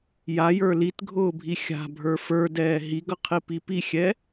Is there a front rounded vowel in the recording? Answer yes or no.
no